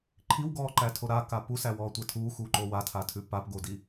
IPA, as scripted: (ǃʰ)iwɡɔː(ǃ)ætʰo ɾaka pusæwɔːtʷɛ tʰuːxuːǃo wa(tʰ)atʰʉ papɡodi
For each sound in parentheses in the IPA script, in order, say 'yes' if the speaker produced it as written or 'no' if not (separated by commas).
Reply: yes, yes, yes